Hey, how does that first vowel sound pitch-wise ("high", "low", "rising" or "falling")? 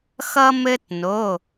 high